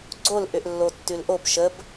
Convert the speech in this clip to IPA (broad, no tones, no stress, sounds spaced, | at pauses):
ɡ͡ǀ o l ʔ ʏ ʔ lː o tː ʉ l ʔ o b ʃ ə b